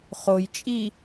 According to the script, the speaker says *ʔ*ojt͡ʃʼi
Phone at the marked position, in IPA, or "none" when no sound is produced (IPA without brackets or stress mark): χ